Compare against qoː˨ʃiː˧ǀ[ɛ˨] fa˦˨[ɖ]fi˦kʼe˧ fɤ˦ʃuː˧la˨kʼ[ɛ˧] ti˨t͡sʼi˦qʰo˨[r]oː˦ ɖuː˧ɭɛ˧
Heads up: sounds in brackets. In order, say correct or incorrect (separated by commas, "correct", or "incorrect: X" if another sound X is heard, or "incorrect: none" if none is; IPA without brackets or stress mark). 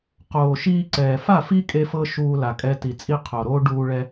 incorrect: ɛː˨, incorrect: none, correct, incorrect: ɾ